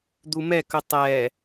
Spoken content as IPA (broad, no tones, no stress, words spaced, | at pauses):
d̪umɛkɵ tˤɛ